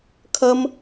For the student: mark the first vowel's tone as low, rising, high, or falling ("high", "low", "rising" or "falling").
high